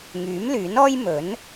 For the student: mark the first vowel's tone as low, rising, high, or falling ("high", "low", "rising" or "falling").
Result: rising